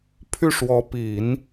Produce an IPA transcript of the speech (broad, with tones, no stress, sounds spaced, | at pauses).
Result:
pʰ y˥˩ ʂ w ɔ˧˥ p i˨˩˦ n